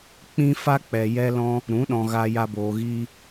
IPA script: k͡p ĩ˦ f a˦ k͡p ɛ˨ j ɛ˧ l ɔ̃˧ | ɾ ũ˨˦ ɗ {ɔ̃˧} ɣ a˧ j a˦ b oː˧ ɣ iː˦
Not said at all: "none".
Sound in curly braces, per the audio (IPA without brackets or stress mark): ɔ̃˨